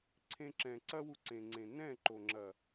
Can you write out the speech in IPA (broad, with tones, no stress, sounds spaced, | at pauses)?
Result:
ǀʰ ẽ˧ ǁ ɛ̃˨ ǀ ɐ˦ w u˧ ǀ ẽ˨ ŋ͡ǀ ẽ˨ n ɛ̃˦˨ ǃ o˨ ŋ͡ǁ ɐ˨